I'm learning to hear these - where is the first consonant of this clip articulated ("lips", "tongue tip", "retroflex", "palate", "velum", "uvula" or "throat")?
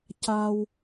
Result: palate